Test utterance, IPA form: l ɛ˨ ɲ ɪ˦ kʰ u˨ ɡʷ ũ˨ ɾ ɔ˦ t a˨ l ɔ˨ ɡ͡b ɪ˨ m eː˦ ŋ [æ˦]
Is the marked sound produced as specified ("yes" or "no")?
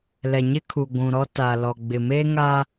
no